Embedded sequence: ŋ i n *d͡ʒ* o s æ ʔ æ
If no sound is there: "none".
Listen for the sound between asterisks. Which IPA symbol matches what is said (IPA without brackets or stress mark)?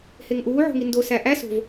d